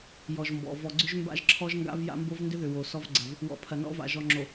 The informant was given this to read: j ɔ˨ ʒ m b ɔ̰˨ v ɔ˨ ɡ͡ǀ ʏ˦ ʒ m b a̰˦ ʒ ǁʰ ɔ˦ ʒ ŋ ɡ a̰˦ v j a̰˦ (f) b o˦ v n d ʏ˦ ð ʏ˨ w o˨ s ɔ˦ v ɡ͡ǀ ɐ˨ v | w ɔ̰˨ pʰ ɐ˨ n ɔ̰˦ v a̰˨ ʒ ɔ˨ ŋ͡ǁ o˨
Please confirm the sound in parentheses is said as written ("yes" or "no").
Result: no